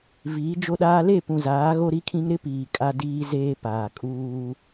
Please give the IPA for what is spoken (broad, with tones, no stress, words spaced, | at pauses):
viː˨˦d͡ʒo˦ɗaː˦ le˦˨pũ˨zaː˨˦ ɣo˦ɾi˦kʰĩ˦ŋ ɾɪ˦piː˨ kʼa˦diː˦zeː˦paː˨ kʼuː˦